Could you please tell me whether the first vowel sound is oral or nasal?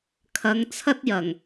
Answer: oral